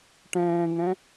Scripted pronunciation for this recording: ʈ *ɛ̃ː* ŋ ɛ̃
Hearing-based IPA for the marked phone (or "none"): ɛ̃ː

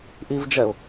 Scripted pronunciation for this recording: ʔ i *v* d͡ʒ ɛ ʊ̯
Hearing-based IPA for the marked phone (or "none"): v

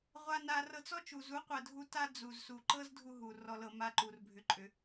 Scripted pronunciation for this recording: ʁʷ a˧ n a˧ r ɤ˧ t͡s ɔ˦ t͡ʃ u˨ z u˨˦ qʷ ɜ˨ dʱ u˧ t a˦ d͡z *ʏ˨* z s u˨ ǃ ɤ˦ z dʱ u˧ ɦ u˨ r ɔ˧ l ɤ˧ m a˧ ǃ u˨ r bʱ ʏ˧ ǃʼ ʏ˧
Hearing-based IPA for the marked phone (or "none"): u˨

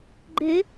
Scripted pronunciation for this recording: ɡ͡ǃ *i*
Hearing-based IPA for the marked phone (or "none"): e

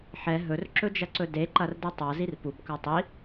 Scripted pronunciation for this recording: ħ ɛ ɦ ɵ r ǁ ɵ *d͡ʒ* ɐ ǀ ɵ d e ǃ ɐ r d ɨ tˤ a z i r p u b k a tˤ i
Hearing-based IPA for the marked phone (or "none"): d͡ʒ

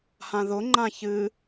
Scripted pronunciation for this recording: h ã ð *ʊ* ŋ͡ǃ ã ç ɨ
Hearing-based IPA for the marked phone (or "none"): ʊ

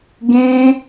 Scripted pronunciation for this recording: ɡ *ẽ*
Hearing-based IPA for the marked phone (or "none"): ẽ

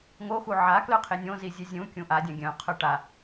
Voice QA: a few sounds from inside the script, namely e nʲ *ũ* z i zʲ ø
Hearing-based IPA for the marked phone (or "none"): õ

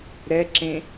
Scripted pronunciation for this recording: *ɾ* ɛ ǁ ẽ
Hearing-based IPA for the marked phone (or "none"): ɾ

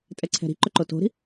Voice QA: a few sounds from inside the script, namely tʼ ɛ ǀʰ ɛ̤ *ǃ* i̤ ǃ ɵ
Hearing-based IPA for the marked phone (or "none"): ɾ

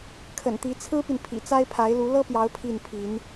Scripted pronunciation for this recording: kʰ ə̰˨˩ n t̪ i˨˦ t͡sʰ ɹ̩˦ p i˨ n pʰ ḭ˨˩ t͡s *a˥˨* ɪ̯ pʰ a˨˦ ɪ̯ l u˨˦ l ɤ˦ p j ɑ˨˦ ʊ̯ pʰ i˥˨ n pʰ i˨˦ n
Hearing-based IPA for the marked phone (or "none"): a˦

